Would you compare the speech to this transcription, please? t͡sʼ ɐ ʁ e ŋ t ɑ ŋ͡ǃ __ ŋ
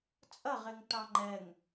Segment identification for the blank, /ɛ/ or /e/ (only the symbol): ɛ